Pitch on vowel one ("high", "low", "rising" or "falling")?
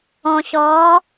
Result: low